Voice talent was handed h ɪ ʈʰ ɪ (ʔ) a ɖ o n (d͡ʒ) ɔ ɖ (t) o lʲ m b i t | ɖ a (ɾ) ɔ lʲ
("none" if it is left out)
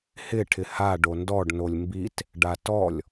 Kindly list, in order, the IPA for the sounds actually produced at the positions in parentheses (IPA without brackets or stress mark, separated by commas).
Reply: h, d, n, t